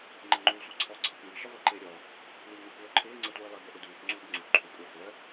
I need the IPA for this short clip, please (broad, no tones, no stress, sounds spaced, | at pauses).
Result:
ŋ͡ǃ e ŋ͡ǃ uː sʷ e ǀʰ ɔ ǀʰ ɪ kʷ ŋ i ʃ ɪ ʁʷ e ǃ ɪː ɾʲ ɔ | l iː ŋ ʊ kʷ œː ǃʰ ɪː ŋ͡ǀ e tʷ iː lˠ e b ə ʔ ɪ d uː kʷ ŋ͡ǀ uː b ŋ͡ǀ u ǃʰ u kʷʼ əː χʷ œ